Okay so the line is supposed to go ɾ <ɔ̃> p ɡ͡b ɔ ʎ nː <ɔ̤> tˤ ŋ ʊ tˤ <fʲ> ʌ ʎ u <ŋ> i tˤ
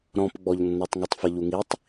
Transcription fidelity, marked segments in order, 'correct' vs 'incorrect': correct, incorrect: ɔ, incorrect: f, correct

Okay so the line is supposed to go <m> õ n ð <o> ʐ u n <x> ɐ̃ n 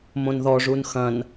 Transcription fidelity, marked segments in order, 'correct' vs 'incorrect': correct, incorrect: ɔ, correct

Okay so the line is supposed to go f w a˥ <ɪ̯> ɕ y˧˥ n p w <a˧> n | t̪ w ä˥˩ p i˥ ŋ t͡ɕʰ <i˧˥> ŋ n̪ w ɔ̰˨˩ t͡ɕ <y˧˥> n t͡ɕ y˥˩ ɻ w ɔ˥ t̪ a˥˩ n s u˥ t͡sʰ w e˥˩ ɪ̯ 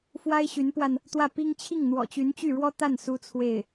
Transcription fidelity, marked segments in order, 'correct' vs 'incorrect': correct, correct, incorrect: i˥˩, correct

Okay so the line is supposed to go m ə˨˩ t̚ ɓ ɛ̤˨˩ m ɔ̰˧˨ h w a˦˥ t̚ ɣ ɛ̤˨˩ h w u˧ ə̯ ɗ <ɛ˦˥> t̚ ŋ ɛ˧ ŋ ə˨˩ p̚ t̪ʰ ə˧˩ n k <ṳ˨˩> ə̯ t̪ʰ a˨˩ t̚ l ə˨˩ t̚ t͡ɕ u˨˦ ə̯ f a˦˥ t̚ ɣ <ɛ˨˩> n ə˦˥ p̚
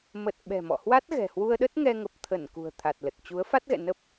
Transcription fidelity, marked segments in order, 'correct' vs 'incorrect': incorrect: ə˦˥, correct, incorrect: ɛ̰˧˨

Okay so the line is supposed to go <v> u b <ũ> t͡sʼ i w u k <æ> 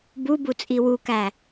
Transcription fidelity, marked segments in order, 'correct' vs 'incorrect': incorrect: b, incorrect: u, correct

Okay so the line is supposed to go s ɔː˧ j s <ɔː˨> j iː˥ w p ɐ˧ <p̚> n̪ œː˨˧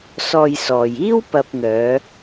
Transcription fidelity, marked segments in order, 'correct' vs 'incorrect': correct, correct

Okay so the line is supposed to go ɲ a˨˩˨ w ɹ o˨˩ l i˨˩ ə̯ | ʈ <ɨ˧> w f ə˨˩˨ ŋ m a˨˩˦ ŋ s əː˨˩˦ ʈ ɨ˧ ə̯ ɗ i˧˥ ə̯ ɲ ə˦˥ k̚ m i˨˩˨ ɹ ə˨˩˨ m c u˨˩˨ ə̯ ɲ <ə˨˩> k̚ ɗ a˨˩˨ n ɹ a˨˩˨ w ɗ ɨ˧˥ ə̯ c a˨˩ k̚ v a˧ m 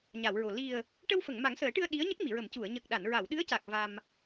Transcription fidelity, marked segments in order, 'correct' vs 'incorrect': incorrect: ə˧, correct

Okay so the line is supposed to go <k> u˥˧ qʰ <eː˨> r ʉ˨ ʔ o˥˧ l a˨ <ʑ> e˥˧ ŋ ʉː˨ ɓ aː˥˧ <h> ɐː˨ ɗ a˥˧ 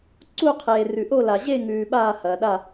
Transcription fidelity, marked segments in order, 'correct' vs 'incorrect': incorrect: ǀ, correct, correct, correct

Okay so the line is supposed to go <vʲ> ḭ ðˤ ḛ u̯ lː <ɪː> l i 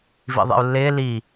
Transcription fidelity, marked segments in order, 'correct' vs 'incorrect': incorrect: v, correct

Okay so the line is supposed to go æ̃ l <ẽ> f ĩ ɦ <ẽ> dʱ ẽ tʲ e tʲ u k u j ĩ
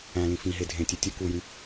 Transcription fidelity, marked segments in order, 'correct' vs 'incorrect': incorrect: ĩ, incorrect: e

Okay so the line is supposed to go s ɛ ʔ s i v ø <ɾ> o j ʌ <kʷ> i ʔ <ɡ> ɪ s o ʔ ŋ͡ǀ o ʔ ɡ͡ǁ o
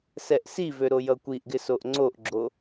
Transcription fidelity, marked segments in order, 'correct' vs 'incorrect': correct, correct, correct

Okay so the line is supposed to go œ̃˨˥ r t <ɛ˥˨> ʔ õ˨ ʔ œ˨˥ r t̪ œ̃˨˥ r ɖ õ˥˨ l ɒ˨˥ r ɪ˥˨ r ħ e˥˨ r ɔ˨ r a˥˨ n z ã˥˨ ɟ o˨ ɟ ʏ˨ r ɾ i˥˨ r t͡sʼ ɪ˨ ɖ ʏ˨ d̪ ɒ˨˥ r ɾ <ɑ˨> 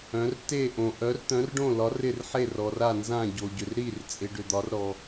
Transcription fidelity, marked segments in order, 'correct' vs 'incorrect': incorrect: e˥˨, incorrect: ɔ˨

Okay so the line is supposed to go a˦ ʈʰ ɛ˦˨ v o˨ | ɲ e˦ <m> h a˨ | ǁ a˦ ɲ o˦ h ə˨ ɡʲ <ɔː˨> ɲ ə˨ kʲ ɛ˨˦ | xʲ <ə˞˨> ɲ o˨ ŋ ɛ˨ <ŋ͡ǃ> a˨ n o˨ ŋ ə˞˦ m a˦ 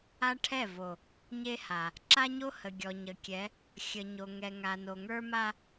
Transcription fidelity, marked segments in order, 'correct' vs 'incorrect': incorrect: none, incorrect: ɔ˨, incorrect: ə˨, incorrect: ŋ

